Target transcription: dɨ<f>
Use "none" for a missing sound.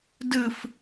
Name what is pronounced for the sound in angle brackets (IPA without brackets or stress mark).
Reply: f